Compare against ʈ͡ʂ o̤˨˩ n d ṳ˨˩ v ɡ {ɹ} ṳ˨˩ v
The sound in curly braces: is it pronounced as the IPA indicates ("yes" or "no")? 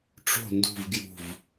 no